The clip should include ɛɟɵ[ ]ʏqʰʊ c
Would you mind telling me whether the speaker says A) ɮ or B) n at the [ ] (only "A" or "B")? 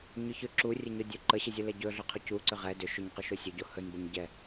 A